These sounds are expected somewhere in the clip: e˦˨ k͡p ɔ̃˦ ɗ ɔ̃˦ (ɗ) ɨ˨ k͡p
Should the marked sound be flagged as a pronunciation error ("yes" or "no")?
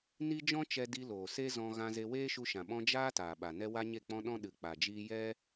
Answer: no